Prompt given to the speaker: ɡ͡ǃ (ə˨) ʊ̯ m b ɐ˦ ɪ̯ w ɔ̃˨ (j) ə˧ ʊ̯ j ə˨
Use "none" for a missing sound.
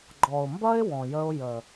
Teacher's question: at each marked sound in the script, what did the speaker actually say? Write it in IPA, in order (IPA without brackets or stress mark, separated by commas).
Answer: ɔ˨, j